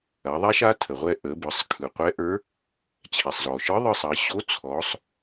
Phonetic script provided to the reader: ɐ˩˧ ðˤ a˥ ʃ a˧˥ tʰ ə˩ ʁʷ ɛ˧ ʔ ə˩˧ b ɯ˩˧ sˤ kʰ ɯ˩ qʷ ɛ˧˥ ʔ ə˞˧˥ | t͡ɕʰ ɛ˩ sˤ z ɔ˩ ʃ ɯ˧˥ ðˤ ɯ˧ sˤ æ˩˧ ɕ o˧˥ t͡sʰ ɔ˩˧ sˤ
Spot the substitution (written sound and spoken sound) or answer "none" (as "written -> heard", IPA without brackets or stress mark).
æ˩˧ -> ɐ˩˧